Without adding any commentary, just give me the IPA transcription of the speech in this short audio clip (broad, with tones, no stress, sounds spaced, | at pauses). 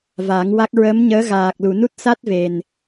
v a˨˩˦ ŋ w a˦˥ k̚ ɹ əː˧˥ m ɲ əː˧˥ ɣ aː˨˩ k̚ l u˨˩˨ n u˦˥ t̚ s a˦˥ t̚ v e˨˩ n